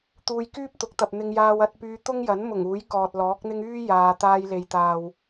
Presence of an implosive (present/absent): absent